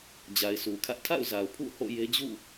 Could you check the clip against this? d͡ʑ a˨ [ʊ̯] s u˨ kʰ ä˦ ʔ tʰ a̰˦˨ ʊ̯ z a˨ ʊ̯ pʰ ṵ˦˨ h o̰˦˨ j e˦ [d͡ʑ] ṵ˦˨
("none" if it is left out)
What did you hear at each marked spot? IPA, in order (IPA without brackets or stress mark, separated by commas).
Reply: ɪ̯, d͡ʑ